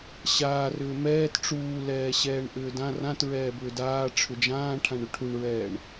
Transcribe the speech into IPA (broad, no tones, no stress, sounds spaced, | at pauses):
ɕ aː r ʏː m ɛː t ʈ͡ʂ uː l ɛː ɕ ɛː ɳ ʔ ʏː d ã r ã t ɹ ɛː b ʏː d aː ʈ͡ʂʰ ʏ d͡ʒ ãː ʈʰ ã ɳ ʏ ʈʰ u ɳ ɹ ɛː ɳ